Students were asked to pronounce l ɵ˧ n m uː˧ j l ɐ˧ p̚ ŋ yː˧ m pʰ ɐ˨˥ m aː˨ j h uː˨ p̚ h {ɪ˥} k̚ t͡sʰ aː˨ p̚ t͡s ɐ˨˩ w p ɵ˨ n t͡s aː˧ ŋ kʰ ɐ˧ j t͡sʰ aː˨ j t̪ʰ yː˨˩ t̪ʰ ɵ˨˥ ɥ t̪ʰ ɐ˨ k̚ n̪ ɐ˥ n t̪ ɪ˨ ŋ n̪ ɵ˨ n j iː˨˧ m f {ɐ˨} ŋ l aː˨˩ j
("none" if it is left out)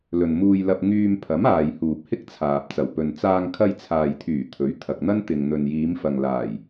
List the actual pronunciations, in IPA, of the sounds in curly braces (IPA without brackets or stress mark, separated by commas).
ɪ˥, ɐ˨